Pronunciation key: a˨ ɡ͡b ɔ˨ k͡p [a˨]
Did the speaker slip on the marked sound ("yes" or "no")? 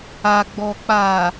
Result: yes